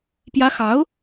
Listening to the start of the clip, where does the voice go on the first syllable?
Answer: high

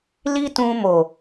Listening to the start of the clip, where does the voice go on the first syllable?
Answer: high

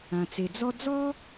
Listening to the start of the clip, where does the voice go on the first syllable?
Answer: low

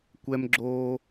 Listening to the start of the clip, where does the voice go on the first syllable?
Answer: high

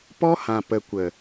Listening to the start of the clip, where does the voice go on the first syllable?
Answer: high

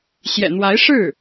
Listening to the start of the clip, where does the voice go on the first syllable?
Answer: low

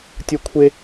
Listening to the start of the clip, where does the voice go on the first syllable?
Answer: high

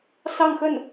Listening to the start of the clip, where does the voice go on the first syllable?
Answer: falling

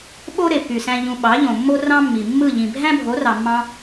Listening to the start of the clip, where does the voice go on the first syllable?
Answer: high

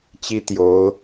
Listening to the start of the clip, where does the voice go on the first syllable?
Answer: high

